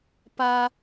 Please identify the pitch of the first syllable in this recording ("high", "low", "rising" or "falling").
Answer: high